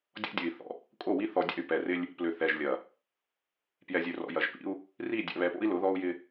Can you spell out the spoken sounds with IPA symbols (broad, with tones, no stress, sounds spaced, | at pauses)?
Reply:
dʲ ɔ̰˦ dʲ ø˨ i̯ θ ɔ̰˨ | kʼ o˦˨ w i˦ θ ɔ˨ dʲ ɛ̰˦˨ y̯ p ɛ˨ r ɪ˦ lʲ | p l ʏ˨ θ ɛ˨ ʒ lʲ ɐ˨ | p j ɛ˨ zʲ ø˨ r ɔ̰˨ j ɐ˨ ʒ p ḭ˦ u̯ | r i˦˨ dʲ ɛ̰˨ β ɛ˨ p o̰˦ i̯ l ʊ˨˦ ð ɔ˦ u̯ j ɪ˦